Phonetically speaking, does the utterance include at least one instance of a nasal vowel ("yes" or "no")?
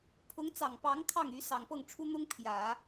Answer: no